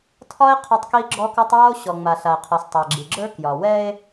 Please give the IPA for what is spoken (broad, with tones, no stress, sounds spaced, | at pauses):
tʰ ɒ˦ e̯ qʰ ɒ˦ tˤ k i˦ ɡ͡ǁ ɔ˦ k ɔ˦ tˤ w ɒ˦ o̯ ɕ ɔ˨ ŋ͡m a˨ ɬ a˨ e̯ qʰ ɔ˨ s tˤ a˨ ɡ͡ǁ i˨ ɡ͡ǁ ə˞˦ k j ɒ˨ w ɛ˦ e̯